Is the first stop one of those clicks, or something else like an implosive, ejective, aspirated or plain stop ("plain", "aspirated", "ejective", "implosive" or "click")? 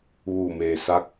plain